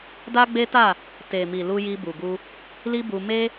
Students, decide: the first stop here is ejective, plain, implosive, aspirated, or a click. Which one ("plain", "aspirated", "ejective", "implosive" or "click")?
plain